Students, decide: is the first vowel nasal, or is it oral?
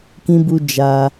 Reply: nasal